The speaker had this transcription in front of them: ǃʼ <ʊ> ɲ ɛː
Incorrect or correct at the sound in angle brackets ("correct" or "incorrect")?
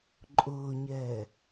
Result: incorrect